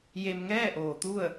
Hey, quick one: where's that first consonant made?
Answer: palate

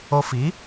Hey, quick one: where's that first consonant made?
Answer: lips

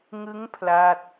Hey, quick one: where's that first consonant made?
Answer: velum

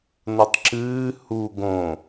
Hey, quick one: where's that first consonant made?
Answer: tongue tip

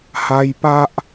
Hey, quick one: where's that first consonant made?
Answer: throat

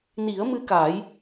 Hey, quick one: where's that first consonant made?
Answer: tongue tip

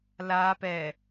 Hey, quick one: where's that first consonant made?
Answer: tongue tip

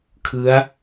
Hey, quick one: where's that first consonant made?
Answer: velum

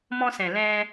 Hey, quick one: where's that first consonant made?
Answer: lips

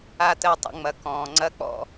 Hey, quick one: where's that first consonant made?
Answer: tongue tip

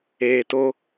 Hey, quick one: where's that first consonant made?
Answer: tongue tip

